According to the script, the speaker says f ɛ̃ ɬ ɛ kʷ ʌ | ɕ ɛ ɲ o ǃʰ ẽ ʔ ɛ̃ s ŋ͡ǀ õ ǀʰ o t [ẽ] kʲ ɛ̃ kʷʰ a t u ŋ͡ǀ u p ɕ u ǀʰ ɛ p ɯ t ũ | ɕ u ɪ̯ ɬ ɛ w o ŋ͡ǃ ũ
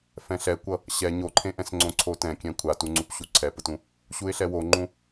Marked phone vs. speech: incorrect: ɛ̃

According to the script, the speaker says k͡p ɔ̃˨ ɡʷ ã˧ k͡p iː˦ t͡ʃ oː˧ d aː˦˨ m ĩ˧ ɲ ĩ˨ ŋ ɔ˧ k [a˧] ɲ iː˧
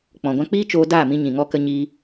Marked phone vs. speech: incorrect: ə˧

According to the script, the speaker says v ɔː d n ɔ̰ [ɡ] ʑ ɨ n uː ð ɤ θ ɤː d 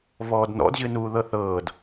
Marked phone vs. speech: incorrect: d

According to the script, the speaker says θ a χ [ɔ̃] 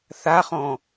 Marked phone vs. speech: correct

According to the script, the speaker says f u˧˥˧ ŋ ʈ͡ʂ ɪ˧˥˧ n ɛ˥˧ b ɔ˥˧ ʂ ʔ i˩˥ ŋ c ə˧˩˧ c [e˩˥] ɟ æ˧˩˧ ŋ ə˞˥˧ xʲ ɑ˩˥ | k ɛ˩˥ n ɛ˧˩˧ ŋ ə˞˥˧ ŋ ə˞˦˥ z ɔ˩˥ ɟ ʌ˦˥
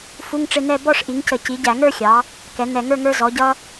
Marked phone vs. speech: incorrect: i˩˥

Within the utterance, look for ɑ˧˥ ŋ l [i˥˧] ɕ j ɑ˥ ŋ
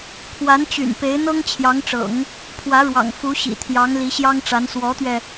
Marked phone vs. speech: incorrect: i˧˥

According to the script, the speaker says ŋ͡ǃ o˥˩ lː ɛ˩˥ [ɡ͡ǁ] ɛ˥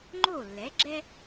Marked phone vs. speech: correct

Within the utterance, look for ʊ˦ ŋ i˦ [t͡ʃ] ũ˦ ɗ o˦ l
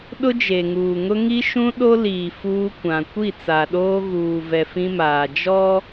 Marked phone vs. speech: incorrect: ʃ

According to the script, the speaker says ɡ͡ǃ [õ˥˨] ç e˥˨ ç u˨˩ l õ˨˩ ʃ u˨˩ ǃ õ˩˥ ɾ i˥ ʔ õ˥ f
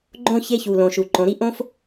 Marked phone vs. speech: correct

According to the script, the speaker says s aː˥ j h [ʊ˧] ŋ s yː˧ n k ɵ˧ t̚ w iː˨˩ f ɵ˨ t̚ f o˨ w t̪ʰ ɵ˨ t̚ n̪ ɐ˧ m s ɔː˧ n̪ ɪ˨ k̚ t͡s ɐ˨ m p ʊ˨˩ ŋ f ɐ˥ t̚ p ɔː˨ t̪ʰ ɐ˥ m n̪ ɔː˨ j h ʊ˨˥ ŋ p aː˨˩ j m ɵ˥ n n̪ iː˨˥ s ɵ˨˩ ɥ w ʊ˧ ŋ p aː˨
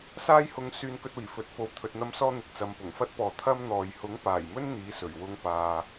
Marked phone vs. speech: correct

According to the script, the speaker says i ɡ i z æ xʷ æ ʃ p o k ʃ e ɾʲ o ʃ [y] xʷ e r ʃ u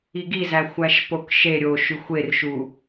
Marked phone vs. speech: correct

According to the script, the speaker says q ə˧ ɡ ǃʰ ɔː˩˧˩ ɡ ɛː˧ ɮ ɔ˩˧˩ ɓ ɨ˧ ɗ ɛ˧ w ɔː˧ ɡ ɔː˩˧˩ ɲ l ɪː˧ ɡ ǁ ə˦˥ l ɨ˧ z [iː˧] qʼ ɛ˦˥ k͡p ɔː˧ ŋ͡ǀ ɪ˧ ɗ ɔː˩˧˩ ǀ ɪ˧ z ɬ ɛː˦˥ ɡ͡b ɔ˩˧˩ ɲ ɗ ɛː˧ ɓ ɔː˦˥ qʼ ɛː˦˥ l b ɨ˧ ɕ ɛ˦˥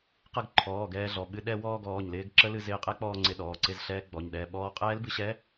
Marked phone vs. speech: incorrect: ɪː˧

